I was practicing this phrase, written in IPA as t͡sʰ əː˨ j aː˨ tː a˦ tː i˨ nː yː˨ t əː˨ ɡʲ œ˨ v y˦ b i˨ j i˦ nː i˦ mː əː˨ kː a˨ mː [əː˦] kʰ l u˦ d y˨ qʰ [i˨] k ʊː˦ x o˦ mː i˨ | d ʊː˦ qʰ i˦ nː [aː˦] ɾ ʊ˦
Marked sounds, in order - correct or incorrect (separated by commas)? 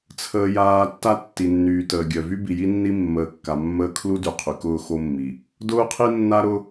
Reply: correct, incorrect, incorrect